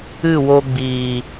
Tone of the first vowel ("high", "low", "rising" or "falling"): falling